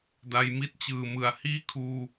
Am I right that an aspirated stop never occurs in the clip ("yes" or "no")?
no